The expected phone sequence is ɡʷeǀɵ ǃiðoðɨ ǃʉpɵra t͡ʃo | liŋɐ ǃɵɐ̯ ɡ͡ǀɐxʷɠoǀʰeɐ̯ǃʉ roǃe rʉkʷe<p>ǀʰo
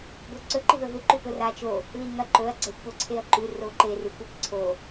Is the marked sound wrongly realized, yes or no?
no